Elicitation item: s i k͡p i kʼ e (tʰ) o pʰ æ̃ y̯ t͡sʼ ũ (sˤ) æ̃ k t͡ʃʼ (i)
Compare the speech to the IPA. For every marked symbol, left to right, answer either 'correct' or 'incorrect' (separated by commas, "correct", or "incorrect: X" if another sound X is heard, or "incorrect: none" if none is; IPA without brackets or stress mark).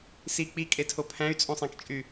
correct, correct, incorrect: y